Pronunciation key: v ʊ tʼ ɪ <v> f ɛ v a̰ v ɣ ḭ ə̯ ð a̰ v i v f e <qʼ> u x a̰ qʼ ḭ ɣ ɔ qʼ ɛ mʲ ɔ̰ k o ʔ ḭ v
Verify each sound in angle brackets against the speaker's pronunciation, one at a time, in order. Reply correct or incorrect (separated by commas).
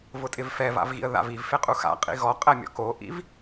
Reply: correct, correct